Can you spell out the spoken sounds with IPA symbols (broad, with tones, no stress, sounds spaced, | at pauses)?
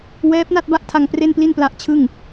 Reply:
w ɛː˦˥ p̚ n a˥˩ t̚ b a˥˩ ʔ tʰ a˧ ŋ p r e˥˩ n p l i˥˩ n p l a˦˥ ʔ t͡ɕʰ ɯ˥˩ ŋ